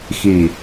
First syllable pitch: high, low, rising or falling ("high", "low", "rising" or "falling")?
low